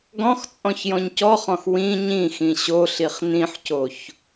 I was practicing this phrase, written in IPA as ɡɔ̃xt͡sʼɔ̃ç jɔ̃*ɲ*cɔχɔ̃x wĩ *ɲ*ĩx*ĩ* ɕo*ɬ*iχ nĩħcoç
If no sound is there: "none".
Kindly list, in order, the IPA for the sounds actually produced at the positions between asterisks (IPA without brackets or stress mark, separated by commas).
ɲ, ɲ, ĩ, ɬ